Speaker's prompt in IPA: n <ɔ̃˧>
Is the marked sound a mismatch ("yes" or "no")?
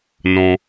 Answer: no